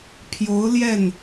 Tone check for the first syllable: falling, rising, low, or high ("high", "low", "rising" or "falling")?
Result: rising